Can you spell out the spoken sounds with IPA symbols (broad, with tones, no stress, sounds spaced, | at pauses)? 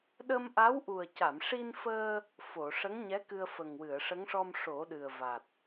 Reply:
ɗ əː˧ m ʔ a˧˥ w ʔ u˨˩ ə̯ c a˨˩˨ m ʂ i˧ n f əː˧ | f o˨˩˨ ʂ ə˧˥ ŋ ɲ ɛ˧˥ k ɨ˧ ə̯ f ə˨˩ ŋ w ɨ˨˩˨ ə̯ ʂ ə˧˥ ŋ ʂ ɔ˧ m ʂ o˨˩˦ ɗ ɨ˨˩ ə̯ v a˨˩ t̚